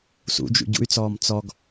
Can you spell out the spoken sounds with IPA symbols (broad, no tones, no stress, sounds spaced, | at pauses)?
s ṵ d͡ʒ ṵ ɟ ṵ y̯ t͡s ɔː m t͡s ɔ ɡ